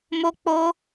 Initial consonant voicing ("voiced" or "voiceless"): voiced